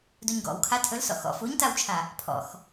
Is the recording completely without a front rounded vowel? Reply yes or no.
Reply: yes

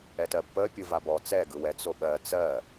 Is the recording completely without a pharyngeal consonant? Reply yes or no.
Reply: yes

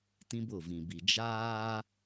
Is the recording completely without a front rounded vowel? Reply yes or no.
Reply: yes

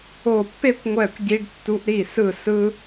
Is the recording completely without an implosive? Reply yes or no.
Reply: yes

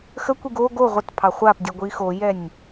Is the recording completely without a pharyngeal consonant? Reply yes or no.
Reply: yes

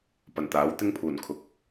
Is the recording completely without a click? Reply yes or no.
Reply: yes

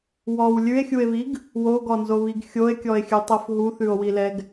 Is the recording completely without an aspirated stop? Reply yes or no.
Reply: yes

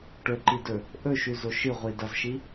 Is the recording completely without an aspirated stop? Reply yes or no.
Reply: yes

